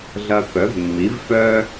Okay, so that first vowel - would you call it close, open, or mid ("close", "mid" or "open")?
open